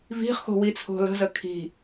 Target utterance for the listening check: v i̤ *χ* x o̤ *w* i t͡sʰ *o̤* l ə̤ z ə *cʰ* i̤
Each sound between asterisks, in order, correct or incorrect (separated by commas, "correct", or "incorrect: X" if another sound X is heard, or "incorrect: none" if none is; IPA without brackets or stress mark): correct, correct, correct, incorrect: kʰ